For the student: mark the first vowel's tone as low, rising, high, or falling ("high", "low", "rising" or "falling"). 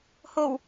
low